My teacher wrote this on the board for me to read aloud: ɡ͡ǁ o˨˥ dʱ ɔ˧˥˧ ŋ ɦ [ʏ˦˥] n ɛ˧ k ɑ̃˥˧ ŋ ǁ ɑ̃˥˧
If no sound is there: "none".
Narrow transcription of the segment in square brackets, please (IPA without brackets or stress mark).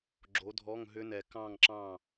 ʏ˦˥